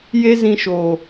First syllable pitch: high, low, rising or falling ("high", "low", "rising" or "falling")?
high